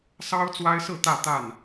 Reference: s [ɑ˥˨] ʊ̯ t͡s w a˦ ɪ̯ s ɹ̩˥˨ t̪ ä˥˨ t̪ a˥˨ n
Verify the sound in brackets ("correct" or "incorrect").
incorrect